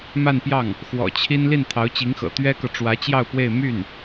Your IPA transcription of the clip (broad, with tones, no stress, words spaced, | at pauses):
ma˥˧npjɑ˥˩ŋ | xwɔ̰˨˩t͡ɕʰi˥n li˥˩nt̪ʰɑ˧˥ʊ̯t͡ɕi˧˥ŋxɤ̰˨˩ t̪ɥɛ˥kɤ˨ ʈ͡ʂwä˧˥t͡ɕjɑ˥˧ʊ̯pwe˥˧ɪ̯ my˥˩n